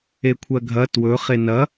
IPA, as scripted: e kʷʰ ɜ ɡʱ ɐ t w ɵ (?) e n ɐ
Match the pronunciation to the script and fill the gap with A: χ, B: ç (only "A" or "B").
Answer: A